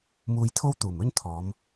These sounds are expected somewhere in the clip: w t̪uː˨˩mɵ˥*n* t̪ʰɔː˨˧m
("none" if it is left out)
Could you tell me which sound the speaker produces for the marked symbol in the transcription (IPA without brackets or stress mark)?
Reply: n